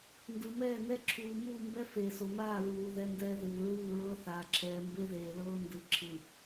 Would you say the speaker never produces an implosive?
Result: yes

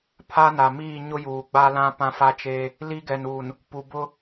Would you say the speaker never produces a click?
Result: yes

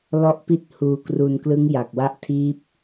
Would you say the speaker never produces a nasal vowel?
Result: yes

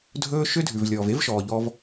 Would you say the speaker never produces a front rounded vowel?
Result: no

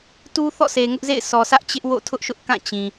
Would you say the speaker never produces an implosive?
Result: yes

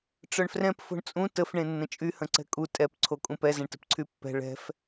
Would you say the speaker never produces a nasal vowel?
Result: no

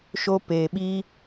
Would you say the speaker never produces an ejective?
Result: yes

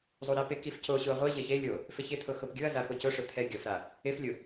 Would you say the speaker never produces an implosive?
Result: yes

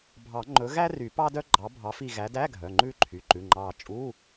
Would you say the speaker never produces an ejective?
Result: no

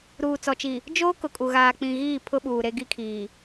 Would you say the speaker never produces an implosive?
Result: no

